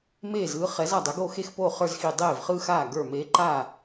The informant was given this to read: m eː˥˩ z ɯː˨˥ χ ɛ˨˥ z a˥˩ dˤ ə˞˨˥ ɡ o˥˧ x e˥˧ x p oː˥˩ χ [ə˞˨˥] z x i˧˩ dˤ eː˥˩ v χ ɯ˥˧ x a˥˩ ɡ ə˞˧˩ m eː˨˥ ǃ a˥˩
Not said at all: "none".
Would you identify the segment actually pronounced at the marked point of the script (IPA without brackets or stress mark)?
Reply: ə˞˥˧